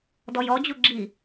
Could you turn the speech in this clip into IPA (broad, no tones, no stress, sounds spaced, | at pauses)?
d ɔ j ɔ d͡ʑ u ɡ͡ǁ i